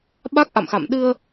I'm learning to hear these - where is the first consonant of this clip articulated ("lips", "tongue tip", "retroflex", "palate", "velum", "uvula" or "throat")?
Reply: lips